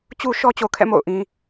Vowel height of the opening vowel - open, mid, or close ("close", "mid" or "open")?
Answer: close